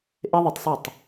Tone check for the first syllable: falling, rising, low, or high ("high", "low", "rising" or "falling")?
high